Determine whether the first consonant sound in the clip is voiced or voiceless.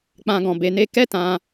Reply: voiceless